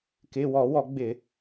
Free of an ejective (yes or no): yes